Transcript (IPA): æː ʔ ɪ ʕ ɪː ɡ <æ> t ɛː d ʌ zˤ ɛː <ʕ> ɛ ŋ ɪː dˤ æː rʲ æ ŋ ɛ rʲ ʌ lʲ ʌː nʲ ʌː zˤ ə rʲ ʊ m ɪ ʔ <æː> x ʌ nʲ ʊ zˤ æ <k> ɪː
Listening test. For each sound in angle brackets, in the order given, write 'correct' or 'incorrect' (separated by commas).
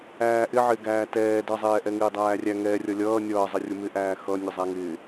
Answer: incorrect, incorrect, correct, incorrect